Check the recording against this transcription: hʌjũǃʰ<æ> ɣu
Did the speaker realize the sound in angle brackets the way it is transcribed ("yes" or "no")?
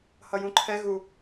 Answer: no